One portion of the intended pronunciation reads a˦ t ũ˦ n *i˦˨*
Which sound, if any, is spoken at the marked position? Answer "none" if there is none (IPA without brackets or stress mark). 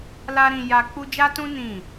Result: ĩ˦˨